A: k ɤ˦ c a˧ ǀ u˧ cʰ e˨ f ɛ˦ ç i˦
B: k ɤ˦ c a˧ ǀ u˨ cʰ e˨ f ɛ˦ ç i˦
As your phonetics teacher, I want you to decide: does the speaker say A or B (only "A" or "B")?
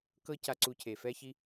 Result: A